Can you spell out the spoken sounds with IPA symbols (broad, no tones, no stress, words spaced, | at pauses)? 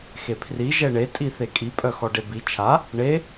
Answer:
xepʰri ʒɛɳe tʼiθekʼi pʼœxɔɖebi t͡ʃʰa | ɳe